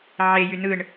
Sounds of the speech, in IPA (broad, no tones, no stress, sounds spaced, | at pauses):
ʕ e j y n ɯ ɳ